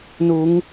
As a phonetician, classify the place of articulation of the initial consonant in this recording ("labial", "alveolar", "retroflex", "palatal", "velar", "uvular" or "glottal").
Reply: alveolar